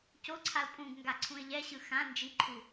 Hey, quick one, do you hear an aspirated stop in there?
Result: yes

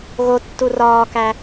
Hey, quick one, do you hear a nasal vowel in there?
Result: no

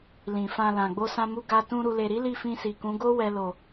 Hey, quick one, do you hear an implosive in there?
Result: no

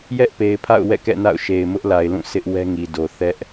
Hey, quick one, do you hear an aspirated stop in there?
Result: yes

